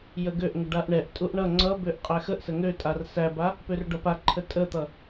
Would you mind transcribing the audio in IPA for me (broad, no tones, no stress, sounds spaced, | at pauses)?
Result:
j ə ɡ ø ʔ ŋ ə ɖ a ʔ ɳ ɛ ʔ tʼ u ʔ ɳ ʌ ŋ͡ǀ ʌ b ø ʔ qʼ æ x ə ʔ s ə ŋ ø tʼ a r s æ b a | p ø r ɖ ʌ p a ǃʰ ə tʼ ə t̪ ʌ